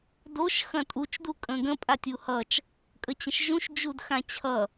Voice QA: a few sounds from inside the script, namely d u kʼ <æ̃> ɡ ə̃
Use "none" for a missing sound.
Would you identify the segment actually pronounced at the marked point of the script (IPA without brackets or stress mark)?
ə̃